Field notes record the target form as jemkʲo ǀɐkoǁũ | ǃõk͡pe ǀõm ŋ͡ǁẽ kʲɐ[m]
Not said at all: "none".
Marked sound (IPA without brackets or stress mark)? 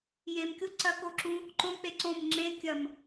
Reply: m